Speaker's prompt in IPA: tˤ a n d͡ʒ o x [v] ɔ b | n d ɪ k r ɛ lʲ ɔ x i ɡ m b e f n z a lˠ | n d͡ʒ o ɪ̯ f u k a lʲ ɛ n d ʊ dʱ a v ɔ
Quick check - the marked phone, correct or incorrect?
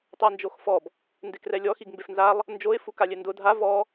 incorrect